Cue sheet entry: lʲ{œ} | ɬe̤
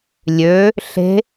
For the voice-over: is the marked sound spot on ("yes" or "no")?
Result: no